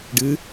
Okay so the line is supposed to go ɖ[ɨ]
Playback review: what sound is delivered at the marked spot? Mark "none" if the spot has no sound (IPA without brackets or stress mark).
ɨ